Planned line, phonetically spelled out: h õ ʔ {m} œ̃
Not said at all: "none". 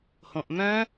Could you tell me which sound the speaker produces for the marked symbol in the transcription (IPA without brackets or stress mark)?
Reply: m